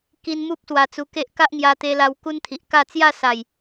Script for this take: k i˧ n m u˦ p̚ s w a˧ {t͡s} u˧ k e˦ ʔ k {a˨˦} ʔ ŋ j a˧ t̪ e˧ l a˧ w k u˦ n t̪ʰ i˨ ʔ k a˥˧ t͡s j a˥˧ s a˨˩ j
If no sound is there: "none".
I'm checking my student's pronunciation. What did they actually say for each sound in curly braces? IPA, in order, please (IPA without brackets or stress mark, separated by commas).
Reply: t͡s, a˦